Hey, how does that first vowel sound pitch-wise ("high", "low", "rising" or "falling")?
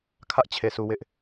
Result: high